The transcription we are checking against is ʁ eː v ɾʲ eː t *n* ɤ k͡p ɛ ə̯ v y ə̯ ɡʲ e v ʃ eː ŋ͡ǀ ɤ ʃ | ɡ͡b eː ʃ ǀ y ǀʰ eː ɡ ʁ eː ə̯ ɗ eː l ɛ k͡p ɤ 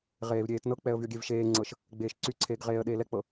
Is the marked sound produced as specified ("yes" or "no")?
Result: yes